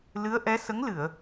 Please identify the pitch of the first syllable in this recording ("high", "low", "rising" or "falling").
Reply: rising